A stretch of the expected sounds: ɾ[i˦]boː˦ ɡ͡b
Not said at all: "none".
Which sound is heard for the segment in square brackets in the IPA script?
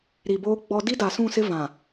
i˨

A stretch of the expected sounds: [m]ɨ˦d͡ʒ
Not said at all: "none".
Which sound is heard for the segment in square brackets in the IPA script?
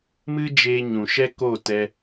m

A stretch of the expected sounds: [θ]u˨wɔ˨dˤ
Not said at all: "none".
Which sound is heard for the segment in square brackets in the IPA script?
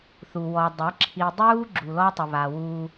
θ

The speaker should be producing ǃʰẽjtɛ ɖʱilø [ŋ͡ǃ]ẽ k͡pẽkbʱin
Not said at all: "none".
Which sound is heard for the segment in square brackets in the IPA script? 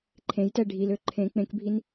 ǃʰ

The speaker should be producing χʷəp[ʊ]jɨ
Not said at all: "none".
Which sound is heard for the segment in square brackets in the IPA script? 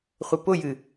ʊ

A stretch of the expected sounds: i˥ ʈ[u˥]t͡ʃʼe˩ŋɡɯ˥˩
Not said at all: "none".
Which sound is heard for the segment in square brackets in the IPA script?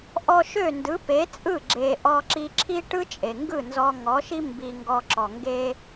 ɯ˥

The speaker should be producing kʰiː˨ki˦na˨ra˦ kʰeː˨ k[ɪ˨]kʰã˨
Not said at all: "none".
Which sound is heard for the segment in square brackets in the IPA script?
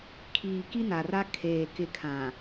ɪ˨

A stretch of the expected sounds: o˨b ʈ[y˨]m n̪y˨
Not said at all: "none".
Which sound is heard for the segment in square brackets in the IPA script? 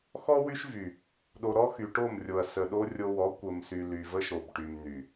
y˨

